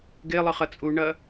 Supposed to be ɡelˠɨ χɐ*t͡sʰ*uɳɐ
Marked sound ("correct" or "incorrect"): incorrect